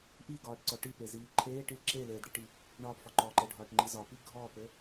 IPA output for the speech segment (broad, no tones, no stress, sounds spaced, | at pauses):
ʔ i ɡ ɒː ʈ ǀ ɔ ʈ i p e z iː ǃʰ eː ʈ i l ǁ e l eː d ɽ i ʈ i | ɳ ɒː p f ɒ ǃ ɔ ǃ ɘ ɖʱ ɒː ʈ ŋ͡ǃ i z ɒ p i ɡʱ ɔ p ɘ